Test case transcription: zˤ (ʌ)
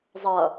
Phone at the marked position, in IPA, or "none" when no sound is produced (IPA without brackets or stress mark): ʌ